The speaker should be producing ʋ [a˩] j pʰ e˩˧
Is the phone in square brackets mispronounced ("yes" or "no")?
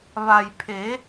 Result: no